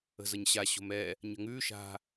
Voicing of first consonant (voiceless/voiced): voiced